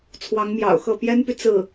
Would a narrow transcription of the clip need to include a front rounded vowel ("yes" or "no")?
yes